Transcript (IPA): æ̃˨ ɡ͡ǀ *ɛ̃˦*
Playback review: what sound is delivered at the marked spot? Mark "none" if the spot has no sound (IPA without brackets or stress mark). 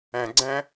æ̃˦